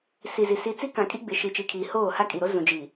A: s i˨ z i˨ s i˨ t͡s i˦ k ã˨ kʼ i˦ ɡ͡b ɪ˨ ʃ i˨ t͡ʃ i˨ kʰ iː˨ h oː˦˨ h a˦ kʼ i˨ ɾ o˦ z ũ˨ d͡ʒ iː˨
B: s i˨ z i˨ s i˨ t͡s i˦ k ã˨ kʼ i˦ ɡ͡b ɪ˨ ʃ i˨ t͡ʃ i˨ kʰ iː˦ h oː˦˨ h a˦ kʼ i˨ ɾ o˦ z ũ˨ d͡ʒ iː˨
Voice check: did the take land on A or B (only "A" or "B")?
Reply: A